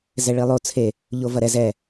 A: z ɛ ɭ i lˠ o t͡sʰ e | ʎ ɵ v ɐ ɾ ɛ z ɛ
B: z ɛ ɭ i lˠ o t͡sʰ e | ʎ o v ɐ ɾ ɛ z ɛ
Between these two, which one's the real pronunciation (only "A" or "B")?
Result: B